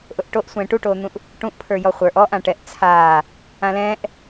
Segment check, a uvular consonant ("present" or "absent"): present